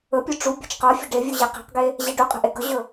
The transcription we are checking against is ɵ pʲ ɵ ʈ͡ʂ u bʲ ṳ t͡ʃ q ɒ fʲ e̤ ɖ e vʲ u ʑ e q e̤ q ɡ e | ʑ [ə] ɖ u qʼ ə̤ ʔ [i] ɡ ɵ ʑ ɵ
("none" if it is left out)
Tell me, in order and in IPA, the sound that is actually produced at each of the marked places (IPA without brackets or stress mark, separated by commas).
ɛ, e